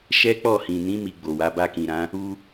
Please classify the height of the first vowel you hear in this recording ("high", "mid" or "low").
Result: mid